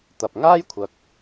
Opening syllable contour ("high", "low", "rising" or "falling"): low